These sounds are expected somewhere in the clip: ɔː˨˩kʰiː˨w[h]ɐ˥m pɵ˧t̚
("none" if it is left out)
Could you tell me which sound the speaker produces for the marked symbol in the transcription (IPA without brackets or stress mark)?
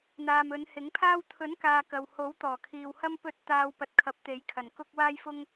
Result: h